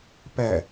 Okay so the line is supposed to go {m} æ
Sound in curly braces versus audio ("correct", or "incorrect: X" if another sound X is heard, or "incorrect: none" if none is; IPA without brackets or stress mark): incorrect: p